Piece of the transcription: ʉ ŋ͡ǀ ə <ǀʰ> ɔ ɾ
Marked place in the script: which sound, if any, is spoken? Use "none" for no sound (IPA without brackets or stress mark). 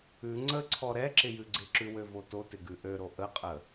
ǀʰ